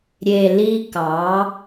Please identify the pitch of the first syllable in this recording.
low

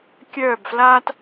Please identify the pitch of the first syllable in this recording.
falling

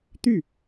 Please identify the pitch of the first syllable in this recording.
falling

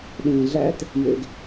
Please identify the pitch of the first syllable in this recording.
low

